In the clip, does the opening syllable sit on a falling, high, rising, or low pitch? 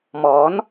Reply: rising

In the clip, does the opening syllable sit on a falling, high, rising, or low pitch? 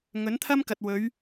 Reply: rising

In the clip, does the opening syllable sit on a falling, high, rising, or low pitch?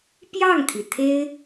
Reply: falling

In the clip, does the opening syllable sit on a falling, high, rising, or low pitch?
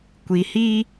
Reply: low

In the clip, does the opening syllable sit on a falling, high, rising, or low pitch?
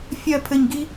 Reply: high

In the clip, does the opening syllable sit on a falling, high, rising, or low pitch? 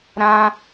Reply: high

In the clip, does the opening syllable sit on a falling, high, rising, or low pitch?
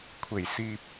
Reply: low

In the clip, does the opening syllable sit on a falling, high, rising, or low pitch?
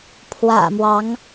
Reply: low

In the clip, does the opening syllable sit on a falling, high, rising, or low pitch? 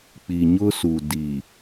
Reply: low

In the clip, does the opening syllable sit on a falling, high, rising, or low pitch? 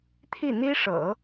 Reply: falling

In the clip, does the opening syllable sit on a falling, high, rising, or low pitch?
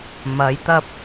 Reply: rising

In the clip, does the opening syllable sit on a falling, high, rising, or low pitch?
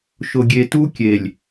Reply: low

